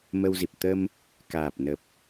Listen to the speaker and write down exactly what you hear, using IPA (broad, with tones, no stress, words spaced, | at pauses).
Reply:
mə˧wzi˨˩p̚ t̪ə˧m | kaː˨˩p̚nə˨˩p̚